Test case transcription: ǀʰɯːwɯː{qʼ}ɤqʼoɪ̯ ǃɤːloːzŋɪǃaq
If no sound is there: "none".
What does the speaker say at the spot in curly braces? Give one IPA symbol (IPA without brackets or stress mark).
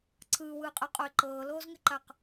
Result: qʼ